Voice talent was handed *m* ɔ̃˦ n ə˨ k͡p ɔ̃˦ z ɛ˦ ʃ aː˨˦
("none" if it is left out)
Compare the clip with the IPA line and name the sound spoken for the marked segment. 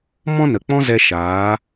m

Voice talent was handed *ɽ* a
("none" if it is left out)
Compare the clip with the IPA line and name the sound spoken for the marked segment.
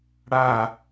ɽ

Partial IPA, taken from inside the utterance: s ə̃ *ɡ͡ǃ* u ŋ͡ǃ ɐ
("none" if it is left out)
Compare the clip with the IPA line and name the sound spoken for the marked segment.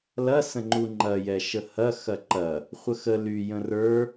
ŋ͡ǃ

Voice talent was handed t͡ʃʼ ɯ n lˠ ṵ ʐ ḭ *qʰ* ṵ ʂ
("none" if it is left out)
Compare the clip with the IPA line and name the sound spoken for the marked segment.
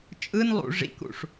k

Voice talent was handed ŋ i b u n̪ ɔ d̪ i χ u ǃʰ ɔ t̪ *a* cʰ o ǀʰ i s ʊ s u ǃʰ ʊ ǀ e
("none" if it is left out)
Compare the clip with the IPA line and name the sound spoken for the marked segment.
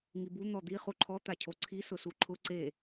a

